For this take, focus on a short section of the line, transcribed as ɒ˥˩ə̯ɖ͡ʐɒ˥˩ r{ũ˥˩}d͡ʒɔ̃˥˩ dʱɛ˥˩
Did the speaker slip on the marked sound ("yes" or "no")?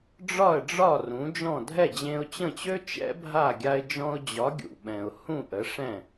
yes